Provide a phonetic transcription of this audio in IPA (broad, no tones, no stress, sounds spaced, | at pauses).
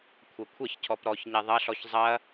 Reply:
kʷʰ ɐ kʷʰ ɐ ç cʰ ɔ p ɾ ɔ ç ɲ ɛ ðˤ ɐ ɬ ɔ ç zˤ ɐ